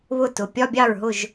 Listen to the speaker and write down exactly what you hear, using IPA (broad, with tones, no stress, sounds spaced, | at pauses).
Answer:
β ʊ˥˩ t ʊ˩˥ pʲ ɒ˧˥˧ bʲ ɑ˥˩ ɹ ɦ ʊ˥˩ ʒ